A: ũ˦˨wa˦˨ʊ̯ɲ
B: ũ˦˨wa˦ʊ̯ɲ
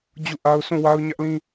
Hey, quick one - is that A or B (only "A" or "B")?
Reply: B